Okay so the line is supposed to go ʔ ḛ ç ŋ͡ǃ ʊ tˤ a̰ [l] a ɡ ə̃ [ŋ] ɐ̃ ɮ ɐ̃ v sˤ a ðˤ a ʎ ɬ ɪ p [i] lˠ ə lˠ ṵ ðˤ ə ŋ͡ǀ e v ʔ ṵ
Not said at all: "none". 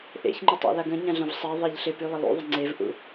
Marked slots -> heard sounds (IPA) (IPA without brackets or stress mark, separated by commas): l, ɲ, y